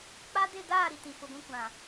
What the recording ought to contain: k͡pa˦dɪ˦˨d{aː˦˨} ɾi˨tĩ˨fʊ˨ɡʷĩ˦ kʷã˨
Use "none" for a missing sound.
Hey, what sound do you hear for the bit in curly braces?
aː˦˨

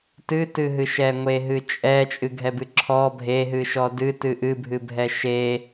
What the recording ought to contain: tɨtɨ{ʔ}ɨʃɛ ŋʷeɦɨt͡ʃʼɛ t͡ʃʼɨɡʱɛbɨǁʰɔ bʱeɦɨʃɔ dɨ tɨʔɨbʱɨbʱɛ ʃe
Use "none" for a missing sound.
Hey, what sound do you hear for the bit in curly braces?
ɦ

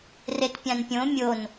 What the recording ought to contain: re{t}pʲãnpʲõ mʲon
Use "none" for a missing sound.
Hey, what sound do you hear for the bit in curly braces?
t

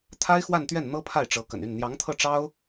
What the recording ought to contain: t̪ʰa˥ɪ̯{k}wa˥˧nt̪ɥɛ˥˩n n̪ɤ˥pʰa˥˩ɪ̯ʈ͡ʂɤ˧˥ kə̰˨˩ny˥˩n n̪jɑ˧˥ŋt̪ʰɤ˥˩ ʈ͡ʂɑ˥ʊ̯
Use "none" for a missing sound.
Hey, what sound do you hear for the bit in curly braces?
x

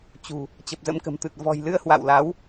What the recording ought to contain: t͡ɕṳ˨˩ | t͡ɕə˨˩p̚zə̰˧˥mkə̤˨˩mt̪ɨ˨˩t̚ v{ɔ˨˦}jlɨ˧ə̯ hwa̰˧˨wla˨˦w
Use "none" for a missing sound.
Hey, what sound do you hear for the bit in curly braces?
ɔ̤˨˩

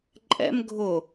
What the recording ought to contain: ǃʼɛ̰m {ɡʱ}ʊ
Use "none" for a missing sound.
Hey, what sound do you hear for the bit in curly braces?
ɡʱ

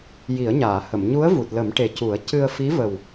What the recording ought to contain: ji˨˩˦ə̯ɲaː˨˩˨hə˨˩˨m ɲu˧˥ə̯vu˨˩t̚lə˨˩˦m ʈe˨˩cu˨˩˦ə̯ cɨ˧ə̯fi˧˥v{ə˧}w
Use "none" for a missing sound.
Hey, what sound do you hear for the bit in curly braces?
ə˨˩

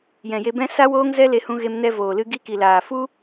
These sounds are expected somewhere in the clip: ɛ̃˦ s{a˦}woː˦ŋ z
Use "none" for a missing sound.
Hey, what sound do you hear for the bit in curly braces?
a˦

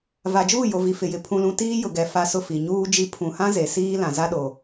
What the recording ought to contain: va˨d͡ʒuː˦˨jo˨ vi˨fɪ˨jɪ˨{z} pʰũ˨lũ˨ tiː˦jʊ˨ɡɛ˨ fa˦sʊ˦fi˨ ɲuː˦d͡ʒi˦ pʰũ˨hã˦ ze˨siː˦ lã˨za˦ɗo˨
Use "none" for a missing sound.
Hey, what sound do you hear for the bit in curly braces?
none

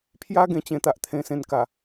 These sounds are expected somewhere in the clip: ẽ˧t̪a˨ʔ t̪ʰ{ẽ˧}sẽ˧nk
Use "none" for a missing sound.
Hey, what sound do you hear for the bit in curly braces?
ẽ˧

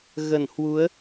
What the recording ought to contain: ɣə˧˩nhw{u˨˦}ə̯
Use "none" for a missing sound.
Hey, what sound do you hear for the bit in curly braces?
u˨˦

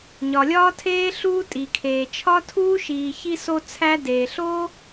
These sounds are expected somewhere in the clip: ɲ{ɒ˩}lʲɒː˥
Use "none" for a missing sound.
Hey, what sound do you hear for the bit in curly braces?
ɒ˩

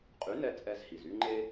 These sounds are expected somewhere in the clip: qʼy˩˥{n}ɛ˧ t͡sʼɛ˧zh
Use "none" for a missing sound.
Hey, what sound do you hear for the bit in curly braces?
n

